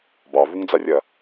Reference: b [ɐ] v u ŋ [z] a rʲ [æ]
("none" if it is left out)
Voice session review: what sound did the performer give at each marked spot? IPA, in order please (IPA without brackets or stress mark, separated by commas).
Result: ɑ, d͡z, ɐ